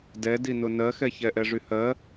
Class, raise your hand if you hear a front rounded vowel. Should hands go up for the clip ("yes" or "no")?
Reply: yes